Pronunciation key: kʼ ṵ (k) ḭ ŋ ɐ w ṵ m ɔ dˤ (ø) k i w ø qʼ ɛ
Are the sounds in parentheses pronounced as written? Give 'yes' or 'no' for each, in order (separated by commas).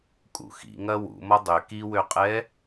no, yes